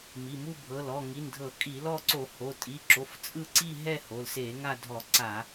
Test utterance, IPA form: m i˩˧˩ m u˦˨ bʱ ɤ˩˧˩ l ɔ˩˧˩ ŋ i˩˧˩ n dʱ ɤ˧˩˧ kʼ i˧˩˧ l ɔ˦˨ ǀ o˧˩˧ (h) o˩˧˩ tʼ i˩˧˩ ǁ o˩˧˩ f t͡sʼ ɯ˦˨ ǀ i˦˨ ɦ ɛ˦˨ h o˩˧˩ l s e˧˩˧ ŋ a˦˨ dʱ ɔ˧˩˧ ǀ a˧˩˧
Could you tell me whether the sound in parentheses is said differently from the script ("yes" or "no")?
no